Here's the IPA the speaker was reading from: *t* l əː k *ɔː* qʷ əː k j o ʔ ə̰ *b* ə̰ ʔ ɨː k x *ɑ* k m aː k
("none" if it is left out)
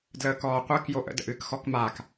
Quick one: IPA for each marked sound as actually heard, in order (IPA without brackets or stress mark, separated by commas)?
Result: d, ɔː, d, ɔ